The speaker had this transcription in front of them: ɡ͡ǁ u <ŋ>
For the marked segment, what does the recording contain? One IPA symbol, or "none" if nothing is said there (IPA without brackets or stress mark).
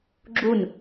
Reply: n